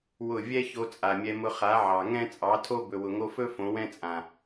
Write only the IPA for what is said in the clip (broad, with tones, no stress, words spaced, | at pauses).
wʊ˦˨ vʲɛ˦ ço˧t͡sʼa˨mʲɛ˧mʊ˧ χa˨˦ʕɑ˨ ŋɛ̃˦t͡sʼɑ˨˦tʰo˦ bɵ˨wʊ˨ŋo˧fɵ˦ fõ˨˦wɛ̃˦t͡sʼã˨